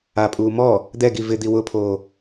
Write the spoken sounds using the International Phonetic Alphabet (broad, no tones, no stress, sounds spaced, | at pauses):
a pʼ uː m ɔ | d̪ ɛ ɡ i v ɪ d̪ i w ʊ pʰ oː